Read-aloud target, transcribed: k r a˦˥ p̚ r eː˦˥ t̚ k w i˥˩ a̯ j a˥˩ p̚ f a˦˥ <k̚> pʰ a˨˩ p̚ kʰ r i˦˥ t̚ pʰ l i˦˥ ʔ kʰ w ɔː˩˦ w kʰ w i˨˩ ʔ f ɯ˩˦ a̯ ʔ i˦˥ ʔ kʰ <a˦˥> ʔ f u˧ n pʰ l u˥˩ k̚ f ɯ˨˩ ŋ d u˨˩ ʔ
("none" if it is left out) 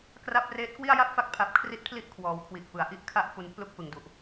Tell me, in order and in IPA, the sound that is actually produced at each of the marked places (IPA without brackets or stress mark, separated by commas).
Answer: k̚, a˦˥